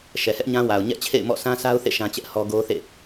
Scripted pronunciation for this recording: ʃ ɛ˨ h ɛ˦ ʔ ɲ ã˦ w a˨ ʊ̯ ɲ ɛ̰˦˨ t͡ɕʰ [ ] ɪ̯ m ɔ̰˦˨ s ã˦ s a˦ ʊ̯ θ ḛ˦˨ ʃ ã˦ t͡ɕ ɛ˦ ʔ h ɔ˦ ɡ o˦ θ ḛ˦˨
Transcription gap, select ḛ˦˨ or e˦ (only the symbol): ḛ˦˨